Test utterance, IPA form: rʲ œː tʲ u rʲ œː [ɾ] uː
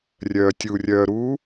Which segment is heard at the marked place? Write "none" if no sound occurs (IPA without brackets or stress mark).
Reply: ɾ